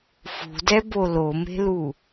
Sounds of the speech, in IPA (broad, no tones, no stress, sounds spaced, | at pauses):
f ṳ d ɛ b o l o m e̤ l u